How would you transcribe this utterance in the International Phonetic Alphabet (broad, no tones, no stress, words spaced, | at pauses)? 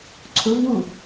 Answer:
ǀʰʊvwu